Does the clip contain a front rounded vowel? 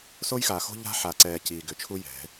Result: yes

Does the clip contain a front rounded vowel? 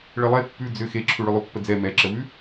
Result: yes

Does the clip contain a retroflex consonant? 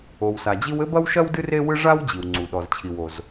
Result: yes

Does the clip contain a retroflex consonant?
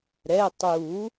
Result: no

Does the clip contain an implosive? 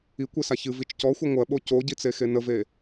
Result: yes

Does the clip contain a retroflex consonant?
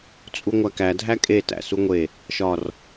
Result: no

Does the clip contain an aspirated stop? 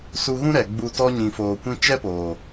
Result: no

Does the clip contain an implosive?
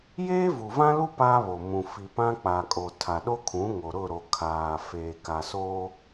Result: yes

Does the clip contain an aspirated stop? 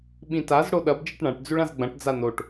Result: no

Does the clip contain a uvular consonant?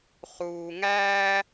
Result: yes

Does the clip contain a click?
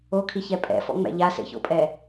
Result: no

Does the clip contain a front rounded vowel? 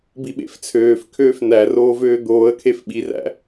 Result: yes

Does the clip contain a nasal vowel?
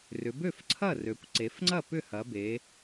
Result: no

